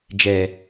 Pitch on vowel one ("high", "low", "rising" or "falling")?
low